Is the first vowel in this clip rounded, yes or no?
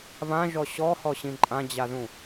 no